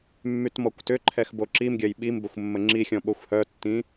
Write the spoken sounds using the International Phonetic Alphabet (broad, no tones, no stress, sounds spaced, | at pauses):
mː y t m ɔ kʷ t ʏ ǃʰ ɛ x b o ǁ i m ɡʲ ɐ j ɓ i m b ə xʷ mː ə ŋ͡ǁ i xʲ ɔ̃ ɓ o xʷ h œ tː ĩ